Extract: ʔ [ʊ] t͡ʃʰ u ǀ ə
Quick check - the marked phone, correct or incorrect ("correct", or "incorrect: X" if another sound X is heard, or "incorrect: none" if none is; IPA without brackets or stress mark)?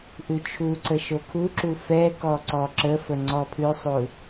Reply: incorrect: ʉ